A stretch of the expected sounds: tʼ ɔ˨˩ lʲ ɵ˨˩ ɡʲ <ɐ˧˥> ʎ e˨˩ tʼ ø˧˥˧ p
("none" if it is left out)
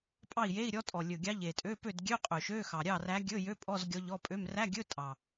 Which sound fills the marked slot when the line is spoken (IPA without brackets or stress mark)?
ɑ˧˥